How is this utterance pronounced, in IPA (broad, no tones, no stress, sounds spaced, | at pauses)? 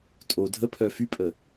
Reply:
tʼ o dʱ ə pʰ œ f y pʼ ə